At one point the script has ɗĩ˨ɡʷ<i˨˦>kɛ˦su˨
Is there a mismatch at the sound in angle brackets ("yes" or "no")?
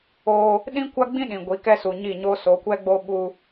no